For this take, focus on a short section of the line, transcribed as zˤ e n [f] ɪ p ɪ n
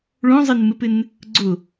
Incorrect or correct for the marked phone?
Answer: incorrect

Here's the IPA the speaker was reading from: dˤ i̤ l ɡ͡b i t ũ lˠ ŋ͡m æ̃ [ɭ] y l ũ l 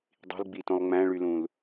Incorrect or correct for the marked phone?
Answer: correct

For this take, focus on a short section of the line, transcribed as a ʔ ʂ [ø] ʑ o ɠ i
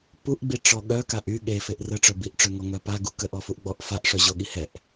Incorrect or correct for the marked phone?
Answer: incorrect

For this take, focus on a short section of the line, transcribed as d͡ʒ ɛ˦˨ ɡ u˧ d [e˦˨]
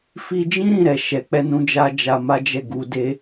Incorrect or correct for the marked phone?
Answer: incorrect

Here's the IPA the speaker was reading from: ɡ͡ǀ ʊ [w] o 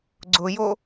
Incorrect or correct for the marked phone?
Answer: incorrect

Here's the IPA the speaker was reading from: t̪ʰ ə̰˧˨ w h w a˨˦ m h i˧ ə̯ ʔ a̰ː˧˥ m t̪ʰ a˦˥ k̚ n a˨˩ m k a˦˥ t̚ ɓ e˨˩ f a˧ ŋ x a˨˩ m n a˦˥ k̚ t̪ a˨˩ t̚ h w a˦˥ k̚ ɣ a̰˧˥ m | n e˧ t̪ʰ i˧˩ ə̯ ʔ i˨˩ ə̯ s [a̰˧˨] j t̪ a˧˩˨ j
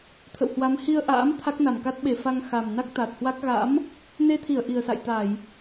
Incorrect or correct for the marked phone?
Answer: correct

